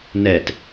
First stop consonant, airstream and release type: plain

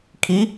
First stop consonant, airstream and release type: aspirated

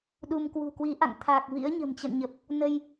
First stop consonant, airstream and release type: implosive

